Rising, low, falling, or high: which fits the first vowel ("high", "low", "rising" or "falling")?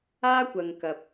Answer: high